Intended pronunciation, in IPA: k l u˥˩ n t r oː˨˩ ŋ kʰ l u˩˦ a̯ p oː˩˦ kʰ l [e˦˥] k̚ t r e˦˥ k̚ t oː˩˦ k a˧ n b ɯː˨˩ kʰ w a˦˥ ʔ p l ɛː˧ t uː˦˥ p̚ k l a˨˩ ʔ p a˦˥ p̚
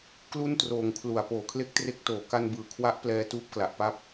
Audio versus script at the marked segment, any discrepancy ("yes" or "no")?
no